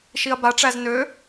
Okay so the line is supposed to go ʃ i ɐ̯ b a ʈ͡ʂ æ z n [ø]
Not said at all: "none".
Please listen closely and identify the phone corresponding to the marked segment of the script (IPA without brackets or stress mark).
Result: ø